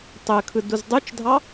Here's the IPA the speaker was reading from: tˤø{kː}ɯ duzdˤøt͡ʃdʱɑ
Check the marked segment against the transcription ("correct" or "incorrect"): incorrect